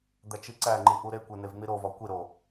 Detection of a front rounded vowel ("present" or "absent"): absent